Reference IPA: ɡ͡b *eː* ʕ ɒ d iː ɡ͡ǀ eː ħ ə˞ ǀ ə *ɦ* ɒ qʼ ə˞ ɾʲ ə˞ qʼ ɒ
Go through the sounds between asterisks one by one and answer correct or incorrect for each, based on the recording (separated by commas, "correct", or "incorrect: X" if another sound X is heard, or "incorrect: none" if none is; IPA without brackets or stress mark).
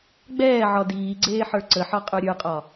incorrect: ɛː, incorrect: ħ